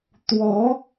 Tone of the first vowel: rising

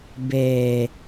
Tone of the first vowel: low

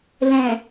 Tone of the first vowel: low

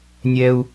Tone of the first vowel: low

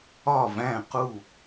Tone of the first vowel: falling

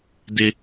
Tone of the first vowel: high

